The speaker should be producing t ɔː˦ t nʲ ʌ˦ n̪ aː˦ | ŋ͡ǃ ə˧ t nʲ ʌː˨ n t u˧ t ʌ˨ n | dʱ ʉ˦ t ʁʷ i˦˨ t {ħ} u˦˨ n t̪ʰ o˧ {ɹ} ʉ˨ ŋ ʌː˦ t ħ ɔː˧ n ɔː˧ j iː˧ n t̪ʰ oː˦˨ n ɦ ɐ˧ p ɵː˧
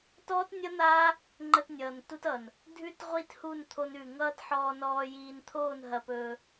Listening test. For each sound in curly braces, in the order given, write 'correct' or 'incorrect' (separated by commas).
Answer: incorrect, incorrect